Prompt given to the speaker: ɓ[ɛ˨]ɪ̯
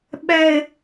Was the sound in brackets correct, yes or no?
yes